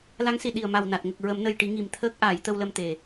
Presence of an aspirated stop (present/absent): present